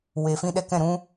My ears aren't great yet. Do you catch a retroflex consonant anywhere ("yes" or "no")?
no